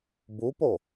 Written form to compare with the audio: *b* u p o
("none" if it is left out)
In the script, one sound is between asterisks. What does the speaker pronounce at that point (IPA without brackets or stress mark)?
b